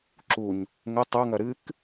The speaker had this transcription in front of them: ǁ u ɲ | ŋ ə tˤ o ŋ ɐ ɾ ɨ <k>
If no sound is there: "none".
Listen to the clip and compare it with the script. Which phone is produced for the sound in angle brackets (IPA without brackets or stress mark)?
k